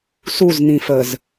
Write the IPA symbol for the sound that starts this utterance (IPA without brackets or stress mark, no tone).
s